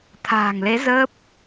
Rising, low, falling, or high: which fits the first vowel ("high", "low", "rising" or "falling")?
low